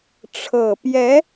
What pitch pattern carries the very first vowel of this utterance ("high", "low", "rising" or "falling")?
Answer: low